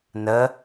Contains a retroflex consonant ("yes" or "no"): no